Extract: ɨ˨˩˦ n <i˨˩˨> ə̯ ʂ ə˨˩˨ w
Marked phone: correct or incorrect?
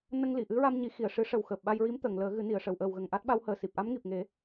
correct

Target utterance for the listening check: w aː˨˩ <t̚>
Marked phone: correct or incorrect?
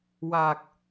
incorrect: k̚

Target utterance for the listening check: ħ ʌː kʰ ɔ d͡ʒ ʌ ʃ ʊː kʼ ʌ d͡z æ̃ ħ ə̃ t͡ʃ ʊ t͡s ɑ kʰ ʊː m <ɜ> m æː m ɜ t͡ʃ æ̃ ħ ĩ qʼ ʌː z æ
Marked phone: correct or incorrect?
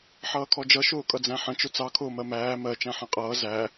correct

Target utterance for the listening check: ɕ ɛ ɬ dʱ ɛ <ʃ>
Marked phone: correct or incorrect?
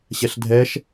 correct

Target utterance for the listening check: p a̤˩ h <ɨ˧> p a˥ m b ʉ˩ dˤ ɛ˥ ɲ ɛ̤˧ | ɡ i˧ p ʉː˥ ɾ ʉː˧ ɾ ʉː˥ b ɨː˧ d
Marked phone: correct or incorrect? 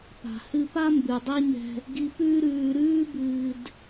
correct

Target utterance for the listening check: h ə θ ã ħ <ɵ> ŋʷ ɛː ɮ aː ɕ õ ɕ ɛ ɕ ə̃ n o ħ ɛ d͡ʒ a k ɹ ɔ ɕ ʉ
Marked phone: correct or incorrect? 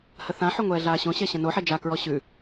correct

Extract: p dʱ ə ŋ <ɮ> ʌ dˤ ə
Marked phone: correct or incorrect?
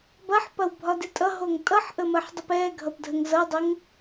incorrect: z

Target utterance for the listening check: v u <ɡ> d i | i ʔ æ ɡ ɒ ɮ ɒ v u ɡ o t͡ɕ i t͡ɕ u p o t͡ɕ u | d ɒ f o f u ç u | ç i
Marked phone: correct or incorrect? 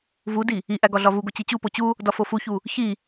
incorrect: none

